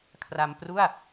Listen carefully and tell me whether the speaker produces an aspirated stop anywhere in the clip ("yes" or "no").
yes